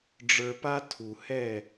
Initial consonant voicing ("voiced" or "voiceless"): voiced